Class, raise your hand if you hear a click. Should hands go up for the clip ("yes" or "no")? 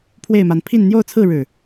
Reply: no